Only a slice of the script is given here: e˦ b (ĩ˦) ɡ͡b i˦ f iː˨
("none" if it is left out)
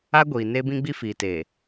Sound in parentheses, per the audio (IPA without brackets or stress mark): ĩ˦